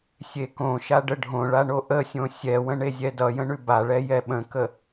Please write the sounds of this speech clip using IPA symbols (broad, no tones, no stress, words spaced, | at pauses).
sʲekõʃa ɖəɖʱõɭa ɳoʔəsʲõ sʲɛwə̃ ɳezʲɛdʌjə̃ ɳʉbaɭɛ jɛɓə̃kə